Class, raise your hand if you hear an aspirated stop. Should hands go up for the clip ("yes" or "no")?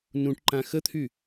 yes